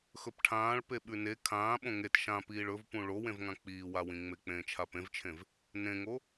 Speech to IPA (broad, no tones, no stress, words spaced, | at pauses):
xɵpʈʰãːɭ peɓʉne kʰãː ɓõŋet ʃãpiːɭ ɵvpũ ɭowẽvŋã k͡piːwawĩŋ͡me k͡pẽːt͡ʃʰapẽvt͡ʃʰẽv | nẽŋo